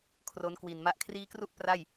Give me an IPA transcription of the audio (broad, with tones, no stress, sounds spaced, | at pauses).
kʰ r o˦˥ n k w i˨˩ n m a˥˩ ʔ kʰ r iː˦˥ k r u˥˩ ʔ p r a˥˩ j